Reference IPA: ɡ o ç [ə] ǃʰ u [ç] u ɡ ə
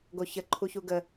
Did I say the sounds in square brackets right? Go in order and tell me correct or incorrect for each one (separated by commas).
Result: correct, correct